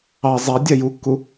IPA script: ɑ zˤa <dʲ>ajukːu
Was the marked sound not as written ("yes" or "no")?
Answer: no